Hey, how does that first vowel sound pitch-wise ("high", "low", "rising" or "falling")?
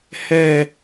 falling